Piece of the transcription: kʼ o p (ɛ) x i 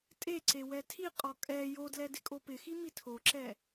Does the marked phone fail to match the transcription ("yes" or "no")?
yes